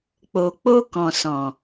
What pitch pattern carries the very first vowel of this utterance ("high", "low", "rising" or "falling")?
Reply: low